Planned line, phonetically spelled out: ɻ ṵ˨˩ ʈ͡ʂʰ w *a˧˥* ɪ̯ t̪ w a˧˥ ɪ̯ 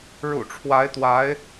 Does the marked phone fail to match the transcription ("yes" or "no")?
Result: no